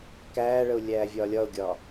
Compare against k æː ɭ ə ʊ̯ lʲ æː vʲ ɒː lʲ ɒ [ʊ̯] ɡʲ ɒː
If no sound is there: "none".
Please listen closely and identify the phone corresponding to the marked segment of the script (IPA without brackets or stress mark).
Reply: ʊ̯